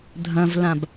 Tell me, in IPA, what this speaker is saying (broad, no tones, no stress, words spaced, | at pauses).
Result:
dʱɐ̃vlãb